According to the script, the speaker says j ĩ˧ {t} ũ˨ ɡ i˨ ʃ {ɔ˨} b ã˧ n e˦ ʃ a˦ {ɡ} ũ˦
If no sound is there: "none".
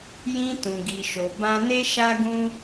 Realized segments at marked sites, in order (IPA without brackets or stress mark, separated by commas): t, o˨, ɡ